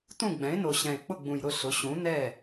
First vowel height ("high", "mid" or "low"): high